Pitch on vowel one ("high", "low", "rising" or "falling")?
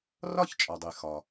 falling